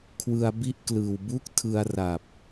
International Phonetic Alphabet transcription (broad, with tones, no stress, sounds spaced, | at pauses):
kʰ w ɯ˧ a̯ b i˥˩ ʔ k l ɯː˨˩ w b u˥˩ k̚ tʰ ɯ˧ a̯ r a˨˩ p̚